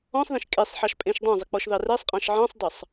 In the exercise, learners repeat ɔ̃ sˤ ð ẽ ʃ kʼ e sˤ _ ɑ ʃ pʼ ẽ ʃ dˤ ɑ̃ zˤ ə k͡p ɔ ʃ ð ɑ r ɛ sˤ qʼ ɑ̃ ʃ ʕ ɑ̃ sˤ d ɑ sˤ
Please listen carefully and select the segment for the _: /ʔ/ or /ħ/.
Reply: ħ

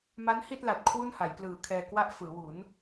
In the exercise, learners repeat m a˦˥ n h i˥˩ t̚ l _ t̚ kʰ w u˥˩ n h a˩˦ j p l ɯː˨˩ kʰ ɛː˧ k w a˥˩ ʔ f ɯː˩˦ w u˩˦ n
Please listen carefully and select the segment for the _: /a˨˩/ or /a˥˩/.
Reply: a˨˩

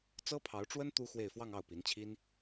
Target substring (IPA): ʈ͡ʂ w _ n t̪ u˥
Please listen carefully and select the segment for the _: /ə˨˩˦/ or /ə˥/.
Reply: ə˥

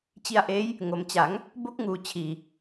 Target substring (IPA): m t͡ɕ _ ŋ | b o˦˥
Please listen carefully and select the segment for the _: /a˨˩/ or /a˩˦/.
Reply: a˩˦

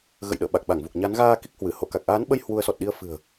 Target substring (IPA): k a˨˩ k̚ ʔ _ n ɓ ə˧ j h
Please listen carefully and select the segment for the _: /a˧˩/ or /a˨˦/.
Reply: a˨˦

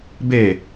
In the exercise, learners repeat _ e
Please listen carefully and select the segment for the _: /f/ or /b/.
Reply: b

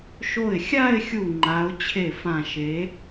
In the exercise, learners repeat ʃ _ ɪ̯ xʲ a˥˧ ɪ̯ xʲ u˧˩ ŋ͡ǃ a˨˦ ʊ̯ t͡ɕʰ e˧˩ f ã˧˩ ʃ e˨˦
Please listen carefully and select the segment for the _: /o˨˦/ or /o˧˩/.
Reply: o˧˩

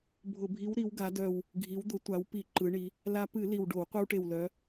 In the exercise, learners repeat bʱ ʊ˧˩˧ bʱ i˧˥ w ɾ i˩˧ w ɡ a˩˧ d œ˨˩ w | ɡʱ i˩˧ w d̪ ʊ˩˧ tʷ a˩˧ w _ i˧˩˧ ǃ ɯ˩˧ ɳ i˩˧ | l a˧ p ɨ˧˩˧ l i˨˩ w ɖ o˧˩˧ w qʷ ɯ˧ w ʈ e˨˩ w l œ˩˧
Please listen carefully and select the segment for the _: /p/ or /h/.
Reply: p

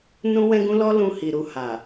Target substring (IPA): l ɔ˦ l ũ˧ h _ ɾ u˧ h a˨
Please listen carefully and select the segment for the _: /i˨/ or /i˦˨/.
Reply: i˨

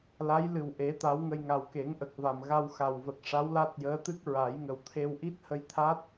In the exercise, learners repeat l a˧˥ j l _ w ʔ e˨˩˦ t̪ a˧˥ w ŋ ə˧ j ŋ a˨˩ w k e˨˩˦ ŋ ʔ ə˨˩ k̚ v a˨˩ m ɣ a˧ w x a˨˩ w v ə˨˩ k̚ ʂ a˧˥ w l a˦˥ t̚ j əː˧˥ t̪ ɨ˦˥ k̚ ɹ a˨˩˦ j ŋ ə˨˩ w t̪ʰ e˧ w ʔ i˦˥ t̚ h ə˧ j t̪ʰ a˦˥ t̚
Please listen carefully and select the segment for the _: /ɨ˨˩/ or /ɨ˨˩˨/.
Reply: ɨ˨˩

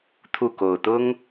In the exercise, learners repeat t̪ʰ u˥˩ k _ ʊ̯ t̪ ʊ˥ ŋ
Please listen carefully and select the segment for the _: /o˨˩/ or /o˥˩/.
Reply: o˨˩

